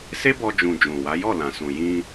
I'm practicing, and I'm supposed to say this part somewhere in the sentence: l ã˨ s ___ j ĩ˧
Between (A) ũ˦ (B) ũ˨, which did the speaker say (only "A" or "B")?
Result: B